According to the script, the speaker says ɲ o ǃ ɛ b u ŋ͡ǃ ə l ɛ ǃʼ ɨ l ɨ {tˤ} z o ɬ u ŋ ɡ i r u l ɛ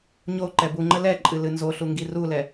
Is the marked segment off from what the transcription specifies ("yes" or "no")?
yes